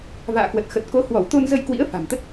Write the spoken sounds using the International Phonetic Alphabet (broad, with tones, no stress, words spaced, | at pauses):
va̰ː˧˨kwə˨˩t̚ xə˨˩t̚ko˨˦hwɔ˧˩w t̪o˧nzə˧jkwḭ˧˥ə̯ fa̤˨˩mt̪ə˦˥t̚